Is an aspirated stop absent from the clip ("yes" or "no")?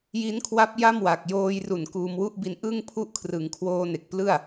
no